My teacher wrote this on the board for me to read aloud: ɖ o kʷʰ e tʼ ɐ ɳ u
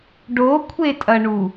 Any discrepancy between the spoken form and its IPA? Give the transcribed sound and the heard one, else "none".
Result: none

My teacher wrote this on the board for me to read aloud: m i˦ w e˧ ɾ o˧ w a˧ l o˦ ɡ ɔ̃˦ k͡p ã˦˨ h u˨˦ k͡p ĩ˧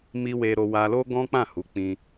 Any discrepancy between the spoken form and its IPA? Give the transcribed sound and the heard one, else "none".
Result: none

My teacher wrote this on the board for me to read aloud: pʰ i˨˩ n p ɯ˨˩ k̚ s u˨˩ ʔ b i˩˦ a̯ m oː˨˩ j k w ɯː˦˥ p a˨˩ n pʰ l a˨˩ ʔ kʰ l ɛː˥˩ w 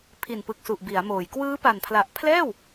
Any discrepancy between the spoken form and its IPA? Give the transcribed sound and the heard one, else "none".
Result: kʰ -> pʰ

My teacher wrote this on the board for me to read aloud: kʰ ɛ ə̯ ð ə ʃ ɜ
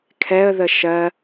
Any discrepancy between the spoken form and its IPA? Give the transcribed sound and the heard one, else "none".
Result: none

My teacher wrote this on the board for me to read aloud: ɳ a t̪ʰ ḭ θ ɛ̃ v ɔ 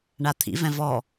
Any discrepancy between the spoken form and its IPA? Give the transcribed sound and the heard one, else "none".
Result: θ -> v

